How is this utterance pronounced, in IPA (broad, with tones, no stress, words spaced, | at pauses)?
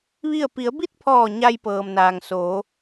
ʋi˥˨ə̯ pi˩˧ə̯bi˥˨t̚pʰɔː˧˩ ɲa˧jpɤː˩mnaː˩ŋ soː˩˧